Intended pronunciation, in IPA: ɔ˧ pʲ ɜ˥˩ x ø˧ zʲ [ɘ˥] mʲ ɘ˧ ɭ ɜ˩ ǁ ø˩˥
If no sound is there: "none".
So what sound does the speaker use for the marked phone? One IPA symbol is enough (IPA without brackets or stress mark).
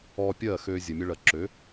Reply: ɘ˩